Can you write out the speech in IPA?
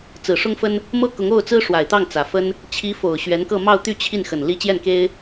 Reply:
t͡s ɹ̩˨˩ ʂ ʊ˥ ŋ f ə˥ n | m ɤ˥ k ʊ˧˥ ŋ o˥˩ ʊ̯ t͡s ɹ̩˥ ʂ w a˨˩ ɪ̯ t̪ ɑ˥˩ ŋ t͡s ä˨˩ f ə˥ n | t͡ɕʰ i˧˥ f o˨˩ ʊ̯ ɕ ɥ ɛ˧˥ n k ɤ˥˧ m ɑ˥˧ ʊ̯ t̪ y˥˧ t͡ɕʰ i˥˩ n x ə˨˩ n l i˧˥ t͡ɕ j ɛ˥˩ n k e˥ ɪ̯

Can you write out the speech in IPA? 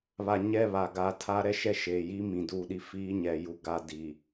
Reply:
β a˨ ɲ ɛ˦˨ β a˨ ɡ a˨ tʰ a˦ ɾ ɛ˦ ʃ ɛ˦ ʃ eː˨ j i˦ m ĩ˨ d uː˦˨ ɗ i˦ f iː˦ ɲ ɛ˨ j u˦ ɡ a˦ d iː˨

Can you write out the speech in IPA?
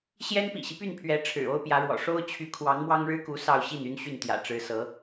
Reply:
ɕ j ɛ˥ n p ḭ˨˩ ɕ i˦ p y˥˩ n pʰ ɥ ɛ˧˥ ʈ͡ʂʰ ɻ̩˨˩ o˥ ʊ̯ p j ä˧˥ ɻ w ɔ̰˨˩ ʂ o˥ ʊ̯ t͡ɕʰ y˧˥ kʰ w ɑ˧˥ ŋ m w ɑ˥ ŋ ɻ ɻ̩˥ k u˧˥ s ɑ˥˧ ʊ̯ ɕ i˥˩ n y˥ n ɕ y˥˩ n t̪ j ä̰˨˩ ʈ͡ʂ ɻ̩˧˥ s ɤ˧˥

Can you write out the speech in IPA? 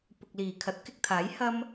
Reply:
p ʊ˨ k̚ l iː˨˩ kʰ ɐ˨˥ t̚ k ɪ˧ k̚ t̪ʰ aː˨˥ j h ɐ˥ m

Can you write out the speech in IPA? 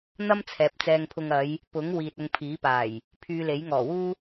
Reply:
n̪ ɐ˥ m t͡sʰ ɛː˨˥ p̚ t͡s ɛː˧ ŋ pʰ ʊ˧ ŋ ɐ˨˧ j | p ʊ˨˥ ŋ w iː˨ t̚ ʊ˧ ŋ pʰ iː˨˥ p aː˨˩ j | pʰ yː˧ l e˨˥ j ŋ ɔː˨˩ w uː˥

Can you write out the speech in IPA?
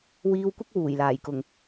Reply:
w iː˧ w kʷ ɐ˥ k̚ w uː˨˩ j l aː˨˩ j k ʊ˨˩ ŋ

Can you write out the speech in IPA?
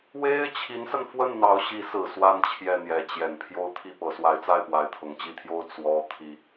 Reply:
w e˥ ɪ̯ t͡ɕʰ i˧˥ n s ə˧ n f w ə˥˩ n n̪ ɑ˧˥ ʊ̯ ɕ i˧˥ s ɹ̩˨˩ s w a˥˧ n t͡ɕʰ j ɛ˥˩ n̪ j ɛ˧˥ t͡ɕ j ɛ˨˩ n pʰ j o˥ ʊ̯ t̪ʰ i˥˩ p ɤ˧˥ s w a˧˥ ɪ̯ t͡s a˥˩ ɪ̯ p w a˧˥ ɪ̯ t̪ʰ ʊ˨˩ ŋ t͡ɕ i˥˩ t̪ʰ j o˥ ʊ̯ t͡s w ɔ˥ t̪ʰ i˥

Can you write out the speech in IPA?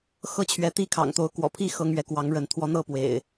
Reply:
x ɤ˥˨ t͡ɕʰ ɥ ɛ˨˦ t̪ i˦ kʰ ɑ̰˨˩ ŋ t̪ o˨˦ ʊ̯ k w ɔ̰˨˩ pʰ i˥˨ x ɤ˦ ŋ ɥ ɛ˨˦ k w ɑ˨˦ ŋ ɻ ə˨˦ n t̪ʰ w ɔ˨˦ n̪ ɤ˥˨ p w ḛ˨˩ ɪ̯

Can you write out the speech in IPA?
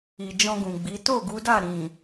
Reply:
i˨ d͡ʒ ɔ̃˧ ɡ ũ˨ ɡ͡b i˨˦ t o˦˨ ɡ u˨˦ d a˦˨ ɾ ĩ˨

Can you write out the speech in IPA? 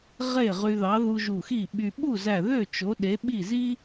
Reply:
ʁ e˥˩ ʁ y˧ ð ɑ˨˥ ð u˧ ʒ u˧˩ x i˥˩ ɓ y˧ ɓ u˥˩ z æ˧˩ ð ø˥˩ t͡ʃ o˨˥ ɗ e˨˥ ɓ i˥˩ z i˥

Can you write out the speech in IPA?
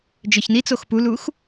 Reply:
d͡ʒ œ ç n i t͡s o x p u l u x

